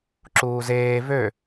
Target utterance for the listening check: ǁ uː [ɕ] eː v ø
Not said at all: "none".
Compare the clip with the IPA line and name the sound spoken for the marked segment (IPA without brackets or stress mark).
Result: z